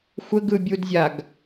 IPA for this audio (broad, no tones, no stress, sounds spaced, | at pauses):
xʷ ə ɡ ɯ bʲ u d zʲ a ɡ